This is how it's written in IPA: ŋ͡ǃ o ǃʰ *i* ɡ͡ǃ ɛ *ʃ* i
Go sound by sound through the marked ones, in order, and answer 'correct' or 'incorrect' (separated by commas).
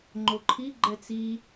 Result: correct, incorrect